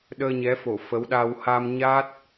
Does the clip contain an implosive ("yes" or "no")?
yes